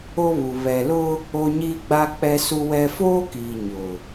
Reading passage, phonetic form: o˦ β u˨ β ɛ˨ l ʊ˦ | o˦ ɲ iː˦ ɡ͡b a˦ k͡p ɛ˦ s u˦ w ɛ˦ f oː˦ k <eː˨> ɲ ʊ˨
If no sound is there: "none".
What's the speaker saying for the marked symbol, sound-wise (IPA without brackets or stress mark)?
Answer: iː˨